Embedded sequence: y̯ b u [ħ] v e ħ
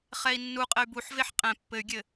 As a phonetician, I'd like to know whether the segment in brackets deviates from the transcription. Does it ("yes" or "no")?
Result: no